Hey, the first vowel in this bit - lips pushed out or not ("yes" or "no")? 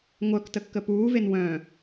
yes